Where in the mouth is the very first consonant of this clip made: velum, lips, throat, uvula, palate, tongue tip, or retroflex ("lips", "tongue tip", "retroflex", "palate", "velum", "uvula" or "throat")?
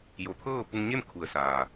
palate